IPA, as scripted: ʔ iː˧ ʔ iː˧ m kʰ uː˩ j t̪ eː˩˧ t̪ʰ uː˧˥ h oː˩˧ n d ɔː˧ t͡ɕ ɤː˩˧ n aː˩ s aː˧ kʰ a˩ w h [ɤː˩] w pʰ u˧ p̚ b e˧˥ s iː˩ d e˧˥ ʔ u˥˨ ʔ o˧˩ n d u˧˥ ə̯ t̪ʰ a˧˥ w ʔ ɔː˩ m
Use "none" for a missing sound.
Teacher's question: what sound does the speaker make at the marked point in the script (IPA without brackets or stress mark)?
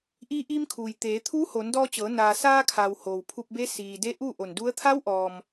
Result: oː˩